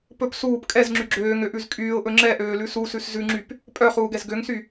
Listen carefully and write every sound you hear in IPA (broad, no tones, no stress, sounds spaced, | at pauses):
p ɵ p s uː p kʼ ɛ z ŋ͡ǁ y ɡ͡ǁ øː ŋ ø ʔ ʉ z kʼ yː ʊ̯ ʔ ɵ ŋ͡ǁ ɛ ʔ øː l ʉ s u s ʉ s z ʉ ŋ͡ǁ y p | pʼ œ χ uː ɡ ɛ z ɡ ø ŋ s y